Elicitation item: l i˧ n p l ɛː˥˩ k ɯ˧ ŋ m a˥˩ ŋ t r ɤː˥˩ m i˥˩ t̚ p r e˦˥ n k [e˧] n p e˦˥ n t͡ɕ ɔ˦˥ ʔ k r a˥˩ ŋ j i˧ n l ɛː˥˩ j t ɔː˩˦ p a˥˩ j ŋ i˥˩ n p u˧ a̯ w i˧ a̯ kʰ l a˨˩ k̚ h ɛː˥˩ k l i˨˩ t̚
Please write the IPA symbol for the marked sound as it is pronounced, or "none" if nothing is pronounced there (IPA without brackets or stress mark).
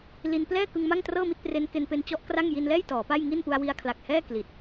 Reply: e˧